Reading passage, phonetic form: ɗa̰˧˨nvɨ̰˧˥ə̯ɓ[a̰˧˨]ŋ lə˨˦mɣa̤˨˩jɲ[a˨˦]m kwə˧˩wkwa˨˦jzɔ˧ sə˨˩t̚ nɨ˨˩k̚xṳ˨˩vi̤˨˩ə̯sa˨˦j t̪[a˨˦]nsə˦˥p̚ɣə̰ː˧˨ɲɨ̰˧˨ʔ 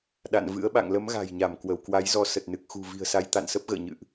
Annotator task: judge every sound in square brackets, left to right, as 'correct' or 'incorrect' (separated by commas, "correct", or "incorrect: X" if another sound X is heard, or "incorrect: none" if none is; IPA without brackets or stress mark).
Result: correct, incorrect: a˧˩, incorrect: a̰˧˨